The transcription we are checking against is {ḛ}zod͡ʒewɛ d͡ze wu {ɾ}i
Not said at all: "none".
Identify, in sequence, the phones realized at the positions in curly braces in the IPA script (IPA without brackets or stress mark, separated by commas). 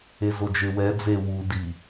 e, d